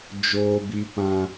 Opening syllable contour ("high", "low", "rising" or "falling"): low